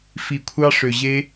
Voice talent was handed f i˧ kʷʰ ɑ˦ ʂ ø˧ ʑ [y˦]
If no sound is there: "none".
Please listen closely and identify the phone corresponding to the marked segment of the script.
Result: e˦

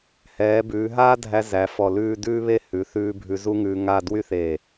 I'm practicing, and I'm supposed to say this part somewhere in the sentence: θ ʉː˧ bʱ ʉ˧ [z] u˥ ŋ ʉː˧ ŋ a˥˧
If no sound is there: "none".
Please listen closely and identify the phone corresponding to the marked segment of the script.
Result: z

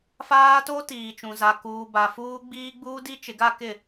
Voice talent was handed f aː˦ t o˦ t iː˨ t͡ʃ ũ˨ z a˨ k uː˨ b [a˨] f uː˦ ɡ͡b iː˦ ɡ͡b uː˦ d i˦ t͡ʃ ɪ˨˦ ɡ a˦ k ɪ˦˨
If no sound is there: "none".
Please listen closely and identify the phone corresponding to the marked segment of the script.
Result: a˨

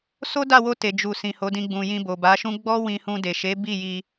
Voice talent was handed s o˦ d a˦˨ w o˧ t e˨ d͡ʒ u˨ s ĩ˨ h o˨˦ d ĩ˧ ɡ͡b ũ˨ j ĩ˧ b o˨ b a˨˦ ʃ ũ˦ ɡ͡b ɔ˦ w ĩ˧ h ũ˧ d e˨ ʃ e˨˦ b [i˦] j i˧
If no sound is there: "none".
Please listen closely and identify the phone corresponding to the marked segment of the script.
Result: i˦˨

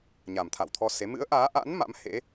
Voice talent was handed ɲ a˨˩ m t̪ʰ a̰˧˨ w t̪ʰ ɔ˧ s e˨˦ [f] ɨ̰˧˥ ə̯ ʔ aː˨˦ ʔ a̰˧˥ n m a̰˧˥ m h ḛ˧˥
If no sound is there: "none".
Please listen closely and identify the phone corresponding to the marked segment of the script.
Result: m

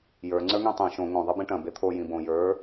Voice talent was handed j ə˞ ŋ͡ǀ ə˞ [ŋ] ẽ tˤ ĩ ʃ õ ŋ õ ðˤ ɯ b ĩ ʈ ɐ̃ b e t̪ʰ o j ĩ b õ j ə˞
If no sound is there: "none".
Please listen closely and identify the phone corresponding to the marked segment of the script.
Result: ŋ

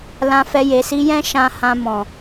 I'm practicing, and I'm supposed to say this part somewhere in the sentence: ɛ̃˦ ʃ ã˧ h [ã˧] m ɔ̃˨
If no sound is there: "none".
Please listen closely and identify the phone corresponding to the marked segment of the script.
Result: ã˧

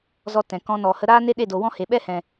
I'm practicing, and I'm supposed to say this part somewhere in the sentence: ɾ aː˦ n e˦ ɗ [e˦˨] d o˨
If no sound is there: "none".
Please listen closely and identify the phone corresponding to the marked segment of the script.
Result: e˦˨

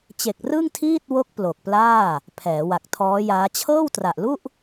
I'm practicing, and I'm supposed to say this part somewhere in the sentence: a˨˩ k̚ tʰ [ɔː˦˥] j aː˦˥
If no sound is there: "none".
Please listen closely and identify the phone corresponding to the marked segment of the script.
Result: ɔː˦˥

